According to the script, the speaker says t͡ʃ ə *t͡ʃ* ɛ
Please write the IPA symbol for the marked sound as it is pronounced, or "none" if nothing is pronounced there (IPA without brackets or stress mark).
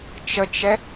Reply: t͡ʃ